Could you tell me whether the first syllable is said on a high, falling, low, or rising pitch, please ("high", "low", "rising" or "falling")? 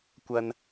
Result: high